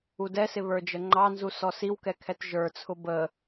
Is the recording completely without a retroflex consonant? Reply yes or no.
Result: yes